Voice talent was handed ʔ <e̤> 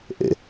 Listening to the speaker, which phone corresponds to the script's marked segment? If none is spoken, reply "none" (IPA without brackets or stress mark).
ḛ